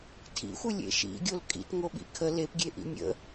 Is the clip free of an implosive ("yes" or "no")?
no